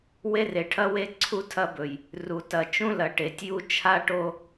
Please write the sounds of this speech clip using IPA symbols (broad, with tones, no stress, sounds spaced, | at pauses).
w e˦ r e˨ ʈʰ ɐ˦ w e˦ ǀʰ u˦ tʰ ɐ˦ b ɵ˨ j | r u˨ t ɐ˨ t͡ʃ ũ˦ l ɐ˨ ʈ e˨ tʲ j u˦ t͡ʃʰ a˦ ʈ o˦